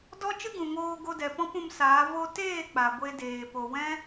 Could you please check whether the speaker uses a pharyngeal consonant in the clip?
no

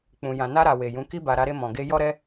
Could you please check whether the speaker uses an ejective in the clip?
no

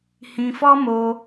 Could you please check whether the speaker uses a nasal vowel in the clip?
yes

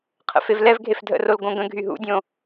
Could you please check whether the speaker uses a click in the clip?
no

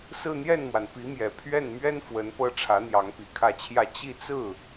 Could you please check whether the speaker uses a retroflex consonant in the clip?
yes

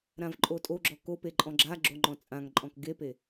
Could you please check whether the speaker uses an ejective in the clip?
yes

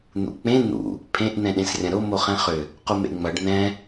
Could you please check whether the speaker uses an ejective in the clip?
no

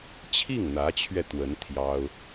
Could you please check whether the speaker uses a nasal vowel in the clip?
no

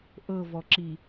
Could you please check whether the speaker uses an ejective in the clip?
no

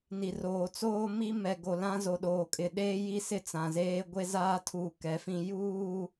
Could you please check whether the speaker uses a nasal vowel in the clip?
yes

